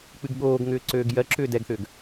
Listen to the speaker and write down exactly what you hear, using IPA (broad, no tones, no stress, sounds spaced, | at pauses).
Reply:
k͡p ɨ ɡ ɠ oː ɡ ŋ ʏː ǀ øː ɡ j ɜ ǁ ʏː d ɛ ɡ θ ʏː ɡ